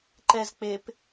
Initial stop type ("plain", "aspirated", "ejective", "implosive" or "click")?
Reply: click